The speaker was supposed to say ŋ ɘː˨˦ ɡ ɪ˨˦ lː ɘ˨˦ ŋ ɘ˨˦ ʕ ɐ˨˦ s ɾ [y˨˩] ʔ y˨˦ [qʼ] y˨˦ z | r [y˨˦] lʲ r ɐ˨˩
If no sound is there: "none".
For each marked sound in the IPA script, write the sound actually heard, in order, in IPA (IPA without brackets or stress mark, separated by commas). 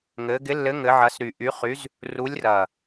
y˨˩, χ, u˨˦